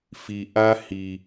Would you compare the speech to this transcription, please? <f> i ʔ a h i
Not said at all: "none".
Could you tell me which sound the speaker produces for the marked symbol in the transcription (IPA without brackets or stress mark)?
f